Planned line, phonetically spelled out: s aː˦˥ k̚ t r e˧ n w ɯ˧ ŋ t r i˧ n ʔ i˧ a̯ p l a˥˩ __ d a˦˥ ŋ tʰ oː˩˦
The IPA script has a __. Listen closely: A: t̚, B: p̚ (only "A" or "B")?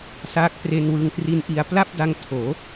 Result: B